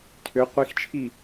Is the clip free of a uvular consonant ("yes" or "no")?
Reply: no